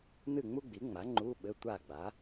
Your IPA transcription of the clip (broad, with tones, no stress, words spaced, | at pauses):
nɨ˥˨ŋ͡mu˥ɡ͡bi˩˥ŋ͡ma˩˥ ŋ͡ǃu˧˥˧ɓɘ˧˥˧ tʷa˥˨ɡ͡ba˩˥